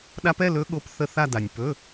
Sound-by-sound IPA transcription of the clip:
ɗ a˦˥ p ɛ˧˥˧ l ɵ˦˥ ɠ o˧˥˧ p θ ə˥˧ θ a˥˧ d a˨ nʲ p ɵ˧˥˧

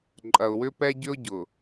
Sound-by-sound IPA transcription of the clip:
ǃʼ ɐ˨ ʊ̯ w ʏ˦ p ɛ˦ ɟ ʏ˦ ʊ̯ ɟ ʊ˨

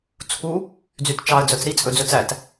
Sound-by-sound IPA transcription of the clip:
t͡sʰ u | d͡z y t t͡ʃ ɑ ə̯ d͡z œ t͡s ɾ i t͡sʼ ɵ d͡z ɵ t͡s æ t

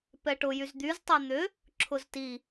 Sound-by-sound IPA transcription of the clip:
p ɛ ʈ ʊ j y z d̪ y z tˤ ɛ n̪ ʏ | ǁʰ ʊ z t i

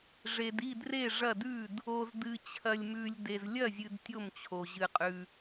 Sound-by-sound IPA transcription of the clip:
ʐ e˨ d i˥˩ d r e˥˩ ʐ ɐ˥˩ d ʉ˥˩ d | o˨ z d ɨ˨ t͡ɕʰ ɐ˨ lʲ m ʉ˨ lʲ d e˨ z lʲ ɐ˥˩ zʲ ɨ˨ d tʲ o˥˩ m t͡ɕʰ o˨ ʑ ɨ˨ qʼ ʉ˨

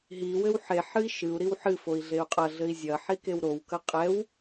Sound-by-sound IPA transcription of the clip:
ɦ i w ɘ w ħ e ħ ɨ i̯ ʃ ɨ u̯ ɾ i w ħ ɨ f o i̯ ɮ e u̯ qʼ ɐ ɮ ɘ i̯ zʲ ɐ ħ i k e w ɾ o w k ɐ qʼ ɛ w

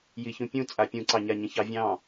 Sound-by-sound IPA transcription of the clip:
j i ç ũ pʲ ũ t͡sʼ a pʲ ũ ǀ ɑ ɲ a ɲ ə̃ ç ɑ vʲ ɑ̃

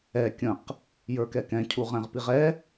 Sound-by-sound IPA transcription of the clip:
ɛ kʲ ə̃ q | j ə˞ k ɛ k ɛ̃ cʰ u ʁ ɛ̃ ʁ p i ʁ ɛ

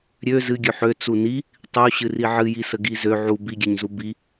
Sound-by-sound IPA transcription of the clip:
ɾʲ ø z ɨ ɡʲ ø ħ ø t͡s u n i | tˤ ɨ u̯ ɕ ɨ r i ʕ ɨ j i s ə ɡ i z ø ʕ u b i ɡʲ ɛ ɲ z u b i

